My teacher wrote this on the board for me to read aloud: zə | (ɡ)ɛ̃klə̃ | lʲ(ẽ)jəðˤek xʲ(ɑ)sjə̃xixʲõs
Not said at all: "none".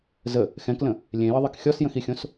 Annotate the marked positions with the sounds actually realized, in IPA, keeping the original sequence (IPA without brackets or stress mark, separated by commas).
x, ẽ, ɔ